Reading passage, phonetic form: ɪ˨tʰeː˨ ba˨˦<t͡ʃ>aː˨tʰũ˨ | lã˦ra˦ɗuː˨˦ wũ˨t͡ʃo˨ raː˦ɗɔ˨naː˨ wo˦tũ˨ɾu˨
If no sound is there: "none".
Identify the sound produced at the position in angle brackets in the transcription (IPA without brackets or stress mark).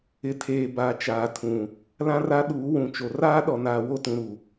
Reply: t͡ʃ